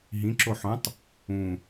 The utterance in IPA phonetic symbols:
ɦ ĩ ǁ o ħ õ tˤ | ũ

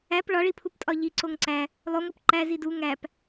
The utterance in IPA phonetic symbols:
æ p ɭ ɒ ɭ i pʰ u p tʼ ɒ ʎ i ǀ o ŋ ǀ æ | lˠ o ŋ o p ǃ æ z i d u ŋ æ p

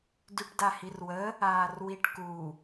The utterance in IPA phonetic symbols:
d y ʈ d a h i r w ə | aː r w i ʈ k u

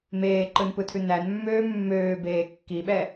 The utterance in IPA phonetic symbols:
m eː ǃ ɯ n p ɯ tʰ ʉ n æ n mː øː mː øː b eː kː i ɓ ɛ

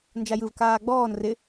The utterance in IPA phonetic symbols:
n d͡ʒ a j ɯ v k aː ɡ͡b ɔː n r ɪ

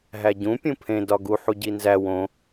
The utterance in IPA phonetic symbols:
ɦ æ ɟ ũ pʲ ũ pʰ ẽ d ɒ ɡ u ħ u ɟ i n z æ w õ

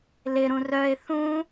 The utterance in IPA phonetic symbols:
l ɪ ɾ ũ r œ ɪ̯ θ ũ

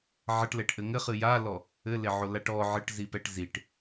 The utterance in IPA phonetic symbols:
ʕ ɐ ʈ l ɛ ʈ ʔ ɘ ŋ ɘ χ ɨ j a l ɔ | ɘ l e ʕ o l a ʈ ɔ ʕ ɘ ʈ z i p ɛ ʈ z i ʈ

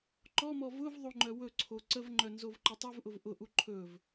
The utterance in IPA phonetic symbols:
ǃ ɔ m ɔ v ʊ v ðˤ o ŋ͡ǃ œ w ɵ ǀʰ o ǀ ə v ŋ͡ǃ œ n z o v ǃ ʊ tˤ ɵ v ʔ ʊ v ʔ ʊ ʔ u ǃʰ ɵ v

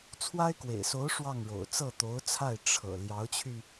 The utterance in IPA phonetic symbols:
t͡sʰ w a˥ ɪ̯ k w ḛ˨˩ ɪ̯ s o˧˥ ʊ̯ ʂ w ɑ˥˩ ŋ ɻ o̰˨˩ ʊ̯ t͡s ɤ˥˩ t̪ o˧˥ ʊ̯ t͡sʰ a˥˩ ɪ̯ ʈ͡ʂʰ ɤ̰˨˩ l j ɑ˧˥ ʊ̯ t͡ɕʰ y˧

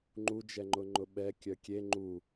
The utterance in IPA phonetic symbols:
ŋ͡ǃ u d͡ʒ ɛ ŋ͡ǃ ʊ ŋ͡ǃ ʊ ɓ ɛ kʲ œ kʲ e ŋ͡ǃ u

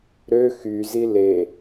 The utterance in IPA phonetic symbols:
ɾ ø x y z i l e

